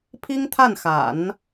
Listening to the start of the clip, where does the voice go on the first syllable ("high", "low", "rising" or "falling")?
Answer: high